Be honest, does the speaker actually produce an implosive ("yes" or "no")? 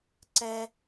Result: no